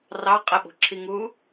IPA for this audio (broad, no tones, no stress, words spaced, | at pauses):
rɑ qʼəɓo̤ǁʰiŋuː